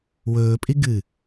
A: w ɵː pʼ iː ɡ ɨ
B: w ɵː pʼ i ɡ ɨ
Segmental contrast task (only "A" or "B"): B